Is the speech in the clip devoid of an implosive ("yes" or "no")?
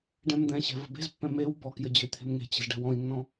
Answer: yes